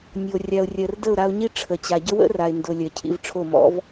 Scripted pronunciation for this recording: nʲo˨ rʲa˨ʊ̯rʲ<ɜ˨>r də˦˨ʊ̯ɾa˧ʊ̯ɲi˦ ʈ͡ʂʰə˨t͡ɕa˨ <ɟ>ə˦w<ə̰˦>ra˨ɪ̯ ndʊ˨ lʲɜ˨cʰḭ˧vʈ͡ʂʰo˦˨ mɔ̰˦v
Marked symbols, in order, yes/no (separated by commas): yes, yes, yes